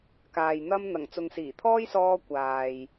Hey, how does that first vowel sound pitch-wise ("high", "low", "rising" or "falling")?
low